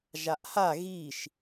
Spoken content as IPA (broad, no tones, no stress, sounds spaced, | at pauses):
ʒ a ʔ h a ɣ i ʃ